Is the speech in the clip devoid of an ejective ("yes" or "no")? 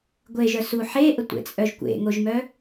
no